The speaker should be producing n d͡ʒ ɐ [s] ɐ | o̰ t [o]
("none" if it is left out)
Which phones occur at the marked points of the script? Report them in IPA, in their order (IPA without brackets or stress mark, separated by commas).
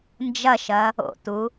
ʃ, u